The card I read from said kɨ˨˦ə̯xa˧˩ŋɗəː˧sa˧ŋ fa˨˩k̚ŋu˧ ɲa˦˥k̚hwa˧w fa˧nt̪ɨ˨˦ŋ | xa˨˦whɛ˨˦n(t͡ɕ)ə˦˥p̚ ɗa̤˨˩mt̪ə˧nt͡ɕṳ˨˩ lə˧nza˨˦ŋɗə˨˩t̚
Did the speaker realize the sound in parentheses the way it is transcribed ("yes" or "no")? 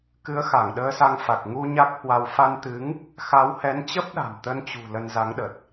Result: yes